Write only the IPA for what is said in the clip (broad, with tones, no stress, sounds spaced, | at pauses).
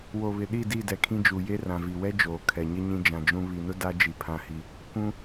w o˨ β ɪ˨ ɗ i˦˨ d i˦˨ d ɛ˨ kʰ ĩ˦ d͡ʒ u˨ j e˦ r ã˨ v i˨ w ɛ˦ d͡ʒ oː˨ kʰ ɛ˨ ɲ ɪ˦ ɲ ĩ˦ d͡ʒ ã˨ d͡ʒ ũ˦ β i˨ n ʊ˦ d a˦ d͡ʒ i˨ pʰ ã˦ h i˦ | kʷ ũ˦